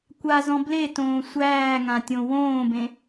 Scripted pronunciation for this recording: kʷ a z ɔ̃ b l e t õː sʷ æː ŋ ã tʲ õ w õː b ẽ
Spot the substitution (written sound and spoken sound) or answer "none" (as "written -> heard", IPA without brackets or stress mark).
none